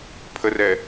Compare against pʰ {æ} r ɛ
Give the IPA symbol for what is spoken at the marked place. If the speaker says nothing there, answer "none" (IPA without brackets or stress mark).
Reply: ə